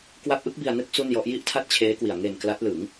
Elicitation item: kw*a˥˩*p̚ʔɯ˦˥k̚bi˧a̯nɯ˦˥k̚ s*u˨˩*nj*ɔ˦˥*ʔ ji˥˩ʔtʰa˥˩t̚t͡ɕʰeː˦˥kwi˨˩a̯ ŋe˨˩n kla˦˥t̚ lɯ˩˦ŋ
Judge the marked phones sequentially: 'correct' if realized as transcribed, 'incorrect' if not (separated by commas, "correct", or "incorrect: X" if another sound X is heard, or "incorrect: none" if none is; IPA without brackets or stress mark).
incorrect: a˦˥, incorrect: u˥˩, correct